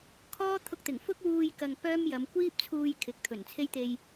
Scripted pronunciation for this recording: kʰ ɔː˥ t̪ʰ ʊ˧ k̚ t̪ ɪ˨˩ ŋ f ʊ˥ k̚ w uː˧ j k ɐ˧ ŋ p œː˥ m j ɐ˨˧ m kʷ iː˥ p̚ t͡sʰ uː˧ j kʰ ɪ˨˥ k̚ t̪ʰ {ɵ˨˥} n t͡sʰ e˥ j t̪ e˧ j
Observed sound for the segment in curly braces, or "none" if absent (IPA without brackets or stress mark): ɵ˨˩